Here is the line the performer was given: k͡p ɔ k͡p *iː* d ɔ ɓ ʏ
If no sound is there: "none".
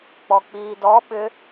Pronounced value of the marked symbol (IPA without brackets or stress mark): iː